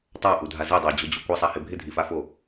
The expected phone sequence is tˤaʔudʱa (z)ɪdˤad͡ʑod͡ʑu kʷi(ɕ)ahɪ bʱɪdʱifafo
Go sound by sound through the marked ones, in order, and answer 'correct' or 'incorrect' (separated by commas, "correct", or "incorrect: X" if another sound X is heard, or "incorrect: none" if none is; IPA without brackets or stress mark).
correct, incorrect: sˤ